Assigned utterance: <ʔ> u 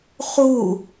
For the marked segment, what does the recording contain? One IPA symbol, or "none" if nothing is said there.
χ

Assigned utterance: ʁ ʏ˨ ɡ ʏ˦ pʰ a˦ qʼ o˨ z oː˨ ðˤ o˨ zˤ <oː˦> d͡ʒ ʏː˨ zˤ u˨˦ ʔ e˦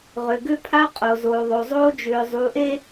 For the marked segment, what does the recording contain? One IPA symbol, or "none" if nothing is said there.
oː˦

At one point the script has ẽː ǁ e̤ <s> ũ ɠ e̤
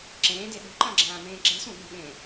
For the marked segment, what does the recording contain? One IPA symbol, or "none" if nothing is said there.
s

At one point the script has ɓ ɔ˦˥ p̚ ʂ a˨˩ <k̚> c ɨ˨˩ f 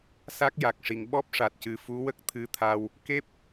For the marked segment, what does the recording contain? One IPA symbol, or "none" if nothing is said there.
t̚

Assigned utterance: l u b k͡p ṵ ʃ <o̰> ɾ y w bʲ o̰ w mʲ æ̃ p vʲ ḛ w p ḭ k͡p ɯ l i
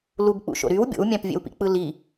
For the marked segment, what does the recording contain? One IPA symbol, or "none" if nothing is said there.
o̰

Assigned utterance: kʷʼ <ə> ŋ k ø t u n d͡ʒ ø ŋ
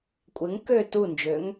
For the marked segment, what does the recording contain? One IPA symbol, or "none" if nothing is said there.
ɪ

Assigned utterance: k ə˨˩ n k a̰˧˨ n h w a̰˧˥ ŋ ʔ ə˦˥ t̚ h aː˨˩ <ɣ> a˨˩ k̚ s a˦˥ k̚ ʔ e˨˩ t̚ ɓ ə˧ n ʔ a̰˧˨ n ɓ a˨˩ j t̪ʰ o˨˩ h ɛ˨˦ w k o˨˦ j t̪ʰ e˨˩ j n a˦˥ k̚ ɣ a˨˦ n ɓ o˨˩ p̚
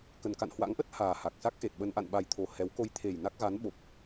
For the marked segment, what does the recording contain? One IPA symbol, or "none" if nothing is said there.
h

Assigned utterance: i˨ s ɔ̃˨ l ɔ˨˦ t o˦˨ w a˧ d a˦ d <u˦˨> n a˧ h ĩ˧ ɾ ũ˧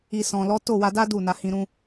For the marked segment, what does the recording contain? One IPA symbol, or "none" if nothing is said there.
u˦˨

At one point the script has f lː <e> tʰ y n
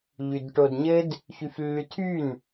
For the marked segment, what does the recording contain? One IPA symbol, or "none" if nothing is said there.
y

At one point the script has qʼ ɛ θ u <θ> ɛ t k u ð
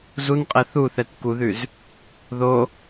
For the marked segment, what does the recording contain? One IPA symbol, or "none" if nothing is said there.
θ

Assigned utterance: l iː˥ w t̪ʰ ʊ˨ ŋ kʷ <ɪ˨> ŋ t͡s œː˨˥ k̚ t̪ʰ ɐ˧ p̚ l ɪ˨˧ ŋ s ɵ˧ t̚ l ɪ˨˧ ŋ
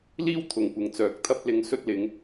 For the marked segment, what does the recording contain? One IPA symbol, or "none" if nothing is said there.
ɪ˨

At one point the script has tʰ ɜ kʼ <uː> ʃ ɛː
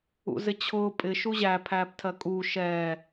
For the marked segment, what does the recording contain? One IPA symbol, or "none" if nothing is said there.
uː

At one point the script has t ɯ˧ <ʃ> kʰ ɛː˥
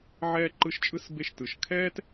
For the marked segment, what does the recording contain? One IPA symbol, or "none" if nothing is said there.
ʃ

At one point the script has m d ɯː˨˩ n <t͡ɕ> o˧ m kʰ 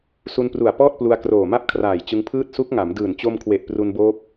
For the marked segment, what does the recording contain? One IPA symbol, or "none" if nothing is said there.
t͡ɕ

